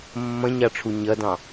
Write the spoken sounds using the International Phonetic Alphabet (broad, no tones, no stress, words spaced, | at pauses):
mːɐ̃ɲɑʈ͡ʂʰu ɲɐdɑ̃